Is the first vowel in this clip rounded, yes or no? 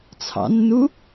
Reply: no